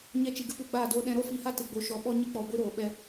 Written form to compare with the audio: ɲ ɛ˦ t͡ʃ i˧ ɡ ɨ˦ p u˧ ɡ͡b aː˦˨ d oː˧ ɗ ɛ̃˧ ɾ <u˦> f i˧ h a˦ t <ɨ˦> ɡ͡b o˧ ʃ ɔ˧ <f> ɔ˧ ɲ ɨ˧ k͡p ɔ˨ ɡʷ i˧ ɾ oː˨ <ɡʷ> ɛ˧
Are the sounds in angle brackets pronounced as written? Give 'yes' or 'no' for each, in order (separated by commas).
no, no, no, no